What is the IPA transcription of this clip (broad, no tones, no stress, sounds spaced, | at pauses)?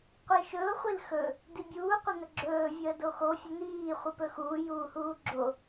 qʷ i ʃ ɵ ʊ̯ χʷ i l x ɵ | d i bʲ uː qʷ ə n ə ɡ͡ǁ ɵː vʲ əː d o x o fʲ ə n iː χʷ i p ɵ x uː j uː h uː ɡ͡ǁ o